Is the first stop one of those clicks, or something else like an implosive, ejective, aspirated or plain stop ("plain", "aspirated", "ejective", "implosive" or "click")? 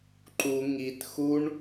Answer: click